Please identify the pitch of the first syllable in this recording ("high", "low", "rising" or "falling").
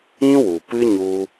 high